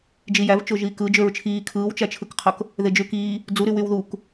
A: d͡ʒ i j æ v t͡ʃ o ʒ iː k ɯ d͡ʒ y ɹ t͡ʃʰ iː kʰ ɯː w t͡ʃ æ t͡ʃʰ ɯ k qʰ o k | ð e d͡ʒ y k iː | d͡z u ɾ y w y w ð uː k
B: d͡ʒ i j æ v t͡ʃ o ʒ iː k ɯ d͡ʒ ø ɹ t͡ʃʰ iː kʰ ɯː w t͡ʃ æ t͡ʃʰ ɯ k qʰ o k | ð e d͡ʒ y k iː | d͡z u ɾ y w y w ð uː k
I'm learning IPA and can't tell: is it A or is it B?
B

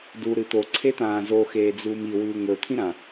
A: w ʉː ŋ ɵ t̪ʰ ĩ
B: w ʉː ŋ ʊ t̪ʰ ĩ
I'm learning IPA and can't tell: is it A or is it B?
A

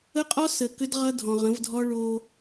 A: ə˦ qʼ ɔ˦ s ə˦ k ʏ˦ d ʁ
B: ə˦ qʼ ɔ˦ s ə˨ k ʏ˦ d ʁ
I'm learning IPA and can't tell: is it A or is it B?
B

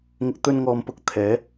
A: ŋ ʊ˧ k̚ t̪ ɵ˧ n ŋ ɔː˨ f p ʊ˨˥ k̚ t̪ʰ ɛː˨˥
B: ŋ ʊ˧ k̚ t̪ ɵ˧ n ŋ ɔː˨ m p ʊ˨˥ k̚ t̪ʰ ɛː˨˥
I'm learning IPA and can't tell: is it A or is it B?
B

